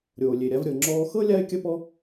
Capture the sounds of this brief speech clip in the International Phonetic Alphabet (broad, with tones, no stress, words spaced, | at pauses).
ɾʲoː˩lʲe˩ɾʲa˧v ɾʲɤ˩ŋ͡ǁɔː˧xɤ˥ lʲa˥ɪ̯kʲə˥pɔ˥